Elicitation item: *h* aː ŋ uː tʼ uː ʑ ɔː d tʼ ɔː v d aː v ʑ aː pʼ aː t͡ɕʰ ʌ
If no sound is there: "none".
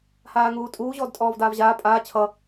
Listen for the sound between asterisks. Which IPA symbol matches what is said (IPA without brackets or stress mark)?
h